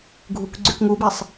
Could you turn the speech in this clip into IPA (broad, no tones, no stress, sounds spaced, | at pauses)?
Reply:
ɡʱ u k ɡ͡ǀ y k ŋ u b e sˤ